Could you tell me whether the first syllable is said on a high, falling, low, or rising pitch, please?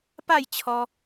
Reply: falling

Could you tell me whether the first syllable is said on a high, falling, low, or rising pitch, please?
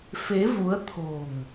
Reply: rising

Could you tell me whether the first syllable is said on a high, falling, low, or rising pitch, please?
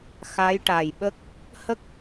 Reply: rising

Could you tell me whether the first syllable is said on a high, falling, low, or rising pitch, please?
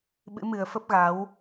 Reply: rising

